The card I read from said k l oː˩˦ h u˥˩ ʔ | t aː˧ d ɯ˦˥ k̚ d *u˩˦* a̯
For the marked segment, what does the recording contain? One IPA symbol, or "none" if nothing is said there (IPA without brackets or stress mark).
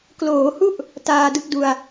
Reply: u˧